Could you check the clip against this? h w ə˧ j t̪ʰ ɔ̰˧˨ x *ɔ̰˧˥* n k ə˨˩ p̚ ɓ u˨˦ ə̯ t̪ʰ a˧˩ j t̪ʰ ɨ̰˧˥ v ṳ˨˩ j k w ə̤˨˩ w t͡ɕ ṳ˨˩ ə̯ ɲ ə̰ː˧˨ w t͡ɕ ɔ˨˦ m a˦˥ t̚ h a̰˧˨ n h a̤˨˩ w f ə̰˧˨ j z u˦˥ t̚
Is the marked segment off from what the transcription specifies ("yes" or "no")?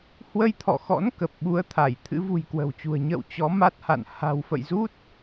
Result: no